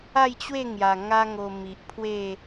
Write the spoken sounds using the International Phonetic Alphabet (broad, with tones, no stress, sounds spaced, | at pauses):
a˥˧ j t͡ɕ w e˥˧ ŋ j a˨˩ ŋ a˦ ŋ o˧ m i˨ ʔ pʰ w e˥˧